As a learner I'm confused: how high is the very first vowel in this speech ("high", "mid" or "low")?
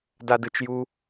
low